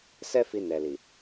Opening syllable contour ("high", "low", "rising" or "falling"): high